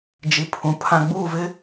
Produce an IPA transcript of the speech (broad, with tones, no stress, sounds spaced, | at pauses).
d͡ʒ i˨ pʰ ũ˨ pʰ ã˨ ɡ͡b uː˦˨ v ɪ˦